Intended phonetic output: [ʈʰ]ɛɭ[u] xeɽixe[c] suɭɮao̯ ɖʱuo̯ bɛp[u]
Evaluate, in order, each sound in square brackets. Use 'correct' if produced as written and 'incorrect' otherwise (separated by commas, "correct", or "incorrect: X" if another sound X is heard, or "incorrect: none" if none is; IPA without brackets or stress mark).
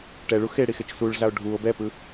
incorrect: ʈ, correct, incorrect: t͡ʃ, incorrect: ɯ